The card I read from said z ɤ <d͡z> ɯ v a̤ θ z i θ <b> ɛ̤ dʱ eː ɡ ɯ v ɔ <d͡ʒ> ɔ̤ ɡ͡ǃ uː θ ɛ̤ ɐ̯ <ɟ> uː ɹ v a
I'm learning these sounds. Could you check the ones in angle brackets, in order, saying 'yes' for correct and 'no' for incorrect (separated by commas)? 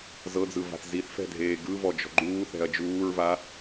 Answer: yes, no, yes, no